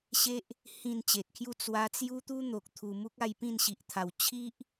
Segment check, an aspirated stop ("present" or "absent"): present